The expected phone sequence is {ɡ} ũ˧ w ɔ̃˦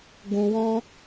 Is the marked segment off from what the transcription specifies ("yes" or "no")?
no